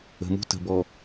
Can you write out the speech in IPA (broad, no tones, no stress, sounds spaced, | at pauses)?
ə̤ m ṳ t ə̤ b ɔ